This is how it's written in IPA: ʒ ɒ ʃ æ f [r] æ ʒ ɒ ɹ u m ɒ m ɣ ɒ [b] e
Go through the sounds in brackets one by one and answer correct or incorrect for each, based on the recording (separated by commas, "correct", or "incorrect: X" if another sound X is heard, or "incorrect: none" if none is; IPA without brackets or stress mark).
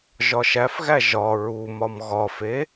incorrect: ɣ, incorrect: f